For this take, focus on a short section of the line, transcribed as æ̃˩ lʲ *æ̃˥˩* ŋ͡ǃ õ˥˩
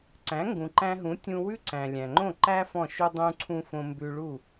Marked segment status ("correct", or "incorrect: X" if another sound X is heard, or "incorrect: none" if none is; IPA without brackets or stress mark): incorrect: æ̃˩